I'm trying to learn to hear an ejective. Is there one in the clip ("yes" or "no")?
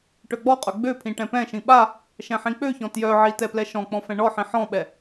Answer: yes